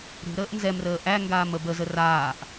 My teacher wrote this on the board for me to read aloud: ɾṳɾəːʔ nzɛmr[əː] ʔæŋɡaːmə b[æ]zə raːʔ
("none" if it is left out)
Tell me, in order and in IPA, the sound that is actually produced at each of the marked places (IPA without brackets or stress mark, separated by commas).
əː, ə